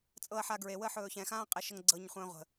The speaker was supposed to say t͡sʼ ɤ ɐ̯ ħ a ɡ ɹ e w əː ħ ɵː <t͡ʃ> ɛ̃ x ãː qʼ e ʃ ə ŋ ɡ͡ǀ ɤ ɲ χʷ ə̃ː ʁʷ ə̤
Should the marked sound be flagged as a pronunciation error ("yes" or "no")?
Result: yes